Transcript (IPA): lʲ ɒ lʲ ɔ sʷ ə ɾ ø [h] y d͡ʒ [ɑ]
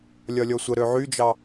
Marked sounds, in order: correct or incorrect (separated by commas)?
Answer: incorrect, correct